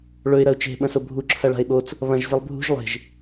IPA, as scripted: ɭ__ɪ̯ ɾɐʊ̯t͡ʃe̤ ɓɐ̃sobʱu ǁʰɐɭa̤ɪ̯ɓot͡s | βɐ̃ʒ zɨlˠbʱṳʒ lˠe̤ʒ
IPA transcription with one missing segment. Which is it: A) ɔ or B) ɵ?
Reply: B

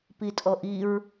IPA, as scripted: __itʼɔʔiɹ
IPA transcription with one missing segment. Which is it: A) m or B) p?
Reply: B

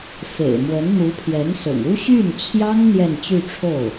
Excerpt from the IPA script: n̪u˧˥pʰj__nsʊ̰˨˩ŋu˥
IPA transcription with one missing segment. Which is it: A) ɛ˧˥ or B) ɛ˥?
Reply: A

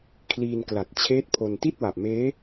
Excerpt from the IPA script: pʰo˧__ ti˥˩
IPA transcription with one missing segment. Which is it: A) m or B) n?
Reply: B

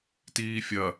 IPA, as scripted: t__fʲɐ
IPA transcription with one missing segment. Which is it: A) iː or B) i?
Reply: A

